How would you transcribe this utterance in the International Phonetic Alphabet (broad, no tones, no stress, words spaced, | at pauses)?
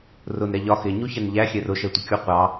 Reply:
rʊn ɾɛʎɒ xɪ ɲuçɛnʎæ xʲɛrʊ ʃɛtʷɪkʲu qʷɑ